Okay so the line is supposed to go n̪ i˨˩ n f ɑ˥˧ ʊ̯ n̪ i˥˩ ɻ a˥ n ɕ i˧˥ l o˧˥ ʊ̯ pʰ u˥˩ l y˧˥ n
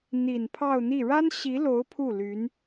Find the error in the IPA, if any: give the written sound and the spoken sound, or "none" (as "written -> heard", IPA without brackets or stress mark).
f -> pʰ